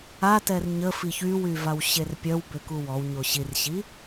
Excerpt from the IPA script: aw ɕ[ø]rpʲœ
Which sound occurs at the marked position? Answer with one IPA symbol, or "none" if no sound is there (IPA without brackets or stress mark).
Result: e